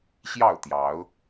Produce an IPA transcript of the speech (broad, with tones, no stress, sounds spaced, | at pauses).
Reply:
ɕ j ɑ˥˨ ʊ̯ t̪ j ɑ˨˦ ʊ̯